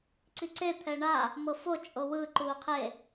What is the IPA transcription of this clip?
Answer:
ǀiǀe t̪ʰɛɳa | mɤfo t͡ʃʼowɯ ǃuːqʰe

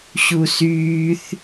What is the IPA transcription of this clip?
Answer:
ɕusyθ

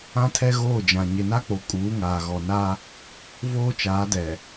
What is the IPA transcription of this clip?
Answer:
ã˦tʰɛ˦ɣoː˦˨d͡ʒã˨ ɲɪ˨na˦k͡po˨ kʼuː˨˦ŋaː˨ɣɔ˨ na˦ | voː˦t͡ʃaː˨˦dɛ˨

